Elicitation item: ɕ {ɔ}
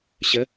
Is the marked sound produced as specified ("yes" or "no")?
no